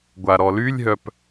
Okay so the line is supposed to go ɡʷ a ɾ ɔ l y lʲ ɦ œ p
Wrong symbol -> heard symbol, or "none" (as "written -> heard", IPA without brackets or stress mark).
none